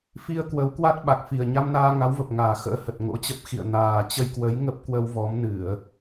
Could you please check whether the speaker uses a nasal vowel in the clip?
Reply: no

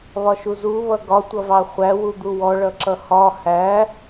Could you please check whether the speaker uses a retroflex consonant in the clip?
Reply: yes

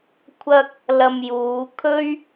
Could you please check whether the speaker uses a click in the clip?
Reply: no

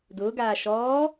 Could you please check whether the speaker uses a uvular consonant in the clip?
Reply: no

